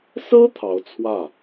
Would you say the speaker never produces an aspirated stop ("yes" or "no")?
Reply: no